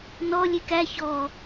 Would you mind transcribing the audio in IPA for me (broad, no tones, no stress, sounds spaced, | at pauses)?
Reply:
n ɔ lʲ e k æ ç ɔ